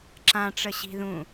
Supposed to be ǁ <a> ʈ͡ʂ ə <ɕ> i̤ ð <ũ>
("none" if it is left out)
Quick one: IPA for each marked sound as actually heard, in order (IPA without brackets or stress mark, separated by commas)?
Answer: ã, ɕ, ũ